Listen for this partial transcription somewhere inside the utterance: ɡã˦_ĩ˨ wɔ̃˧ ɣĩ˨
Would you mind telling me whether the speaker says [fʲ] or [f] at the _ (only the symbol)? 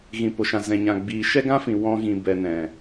f